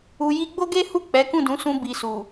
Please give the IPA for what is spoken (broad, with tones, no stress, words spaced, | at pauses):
u˨ ji˧ɡ͡bo˦ɡe˦hu˦˨ k͡pɛ˨˦kũ˦˨dũ˨˦sũ˧ bi˨ su˨